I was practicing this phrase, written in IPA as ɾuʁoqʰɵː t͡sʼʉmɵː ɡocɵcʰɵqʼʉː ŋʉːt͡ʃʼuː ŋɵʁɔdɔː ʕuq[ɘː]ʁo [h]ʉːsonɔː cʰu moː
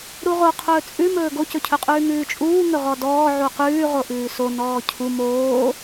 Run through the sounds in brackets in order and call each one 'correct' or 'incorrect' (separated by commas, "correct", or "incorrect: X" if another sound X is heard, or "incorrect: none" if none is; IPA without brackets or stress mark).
incorrect: ʉː, incorrect: ʔ